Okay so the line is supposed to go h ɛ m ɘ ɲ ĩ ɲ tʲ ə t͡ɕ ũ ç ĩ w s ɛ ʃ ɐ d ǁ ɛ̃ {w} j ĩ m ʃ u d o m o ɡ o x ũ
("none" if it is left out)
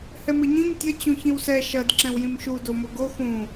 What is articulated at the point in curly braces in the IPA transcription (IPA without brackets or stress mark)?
w